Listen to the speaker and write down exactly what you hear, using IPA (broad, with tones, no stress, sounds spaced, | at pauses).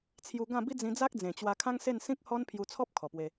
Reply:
t͡sʰ j u˧ ɡ ã˥˧ b i˦ d͡z ĩ˧ d͡z a˦ k̚ d͡z ẽ˨˩ t͡ɕ w a˧ kʰ ã˦ ŋ s e˥˧ n s ĩ˦ k̚ h ɔ˦ n pʰ j u˧ t͡sʰ ɔ˦ p̚ kʰ ɔ˨˩ p w e˧